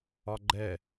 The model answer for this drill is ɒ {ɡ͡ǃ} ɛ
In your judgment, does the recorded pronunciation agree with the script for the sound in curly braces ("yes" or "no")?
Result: yes